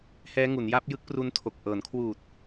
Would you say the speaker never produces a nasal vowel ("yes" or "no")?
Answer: yes